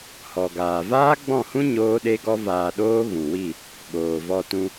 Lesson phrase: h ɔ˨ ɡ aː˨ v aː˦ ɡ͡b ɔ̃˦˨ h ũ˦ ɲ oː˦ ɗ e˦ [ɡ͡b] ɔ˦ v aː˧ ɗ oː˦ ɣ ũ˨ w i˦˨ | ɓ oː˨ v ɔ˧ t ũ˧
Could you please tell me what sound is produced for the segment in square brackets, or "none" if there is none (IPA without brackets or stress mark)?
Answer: ɡ